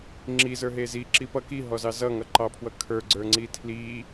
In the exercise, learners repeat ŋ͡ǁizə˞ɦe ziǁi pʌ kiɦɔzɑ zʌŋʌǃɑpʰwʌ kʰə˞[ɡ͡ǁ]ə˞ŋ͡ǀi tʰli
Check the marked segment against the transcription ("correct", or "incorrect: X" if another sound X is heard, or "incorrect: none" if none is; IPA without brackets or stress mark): incorrect: ɡ͡ǀ